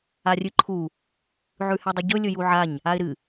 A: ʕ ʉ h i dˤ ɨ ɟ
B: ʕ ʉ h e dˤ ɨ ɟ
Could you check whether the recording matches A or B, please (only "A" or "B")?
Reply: B